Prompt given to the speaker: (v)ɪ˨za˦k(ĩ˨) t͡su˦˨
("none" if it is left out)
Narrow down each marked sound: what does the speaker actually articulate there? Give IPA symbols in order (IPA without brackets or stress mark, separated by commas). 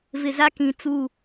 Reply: v, ĩ˨